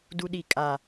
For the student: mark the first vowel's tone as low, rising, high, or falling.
high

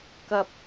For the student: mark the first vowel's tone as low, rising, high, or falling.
low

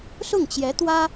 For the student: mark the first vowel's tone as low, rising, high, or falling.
falling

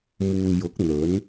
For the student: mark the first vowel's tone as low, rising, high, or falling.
low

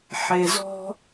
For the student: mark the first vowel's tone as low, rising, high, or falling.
low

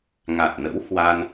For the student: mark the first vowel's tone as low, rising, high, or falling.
low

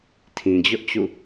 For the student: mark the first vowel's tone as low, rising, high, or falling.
low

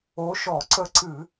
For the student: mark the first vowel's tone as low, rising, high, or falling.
rising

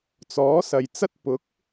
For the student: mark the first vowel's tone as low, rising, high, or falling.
rising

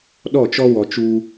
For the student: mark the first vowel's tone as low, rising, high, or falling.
falling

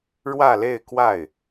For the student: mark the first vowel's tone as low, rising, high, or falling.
falling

